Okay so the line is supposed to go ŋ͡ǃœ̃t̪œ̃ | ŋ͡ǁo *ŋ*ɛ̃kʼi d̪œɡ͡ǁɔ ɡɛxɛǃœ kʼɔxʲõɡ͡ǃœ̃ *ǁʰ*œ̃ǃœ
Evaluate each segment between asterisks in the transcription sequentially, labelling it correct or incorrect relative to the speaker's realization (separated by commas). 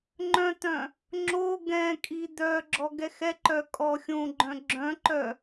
incorrect, incorrect